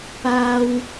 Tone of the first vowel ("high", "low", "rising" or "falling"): high